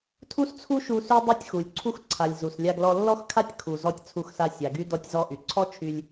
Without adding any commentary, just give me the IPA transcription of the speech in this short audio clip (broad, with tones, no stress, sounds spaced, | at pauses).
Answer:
tʰ u˥ s t͡sʰ u˥ ʃ u˧ s y˥ dˤ y˥ tʲ x u˩ lʲ ǀʰ u˥ x ǀʰ a˩ lʲ z u˩ s lʲ a˧ ɡ l ɔ˧ lː ɔ˥ x kʰ a˥ tʲ kʰ u˩ z ɔ˧ tʲ t͡sʰ u˧ x s a˧ sʲ a˩ ɡ y˥ d ɔ˧ tʲ z ɔ˧ ʔ y˩ ǀʰ ɔ˥ t͡ʃʰ y˧ lʲ